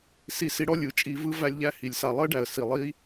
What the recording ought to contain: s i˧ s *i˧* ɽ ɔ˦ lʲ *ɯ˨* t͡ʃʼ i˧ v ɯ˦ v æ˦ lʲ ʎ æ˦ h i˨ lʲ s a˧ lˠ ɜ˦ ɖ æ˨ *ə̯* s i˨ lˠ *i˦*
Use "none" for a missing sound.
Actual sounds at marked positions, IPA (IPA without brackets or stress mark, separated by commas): i˧, ɯ˨, ə̯, i˦